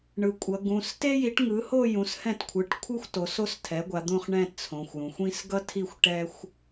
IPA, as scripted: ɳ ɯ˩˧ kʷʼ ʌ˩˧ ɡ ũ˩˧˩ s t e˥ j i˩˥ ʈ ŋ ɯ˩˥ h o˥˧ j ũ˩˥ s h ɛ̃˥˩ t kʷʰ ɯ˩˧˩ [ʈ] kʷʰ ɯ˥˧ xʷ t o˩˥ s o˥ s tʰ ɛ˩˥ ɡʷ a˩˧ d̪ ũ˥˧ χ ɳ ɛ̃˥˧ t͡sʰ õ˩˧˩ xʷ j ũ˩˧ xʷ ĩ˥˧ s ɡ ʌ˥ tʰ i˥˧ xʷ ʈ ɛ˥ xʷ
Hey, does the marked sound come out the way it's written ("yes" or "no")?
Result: yes